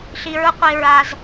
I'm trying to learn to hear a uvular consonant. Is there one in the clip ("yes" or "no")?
yes